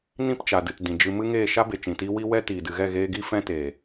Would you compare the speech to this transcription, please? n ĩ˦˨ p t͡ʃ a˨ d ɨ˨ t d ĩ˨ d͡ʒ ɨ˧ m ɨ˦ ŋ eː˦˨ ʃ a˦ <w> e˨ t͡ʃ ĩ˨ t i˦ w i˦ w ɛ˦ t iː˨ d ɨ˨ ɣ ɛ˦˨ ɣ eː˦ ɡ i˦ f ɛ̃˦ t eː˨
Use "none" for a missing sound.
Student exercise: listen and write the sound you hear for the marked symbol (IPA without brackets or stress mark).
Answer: b